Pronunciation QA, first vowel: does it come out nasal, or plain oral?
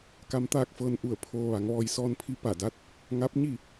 oral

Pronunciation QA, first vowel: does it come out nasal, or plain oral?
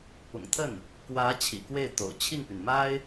oral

